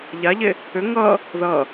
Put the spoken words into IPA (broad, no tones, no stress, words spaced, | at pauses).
ʎaʎe | ʏ ŋʌ | ðʌ